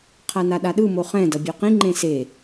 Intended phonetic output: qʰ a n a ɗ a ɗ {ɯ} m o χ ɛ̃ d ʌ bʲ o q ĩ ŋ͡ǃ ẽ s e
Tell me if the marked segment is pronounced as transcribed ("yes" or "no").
yes